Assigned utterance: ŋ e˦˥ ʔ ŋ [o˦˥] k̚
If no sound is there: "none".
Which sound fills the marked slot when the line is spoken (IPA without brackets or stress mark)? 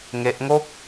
o˥˩